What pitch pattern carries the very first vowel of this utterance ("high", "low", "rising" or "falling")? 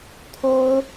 high